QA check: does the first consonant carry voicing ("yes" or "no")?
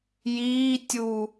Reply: yes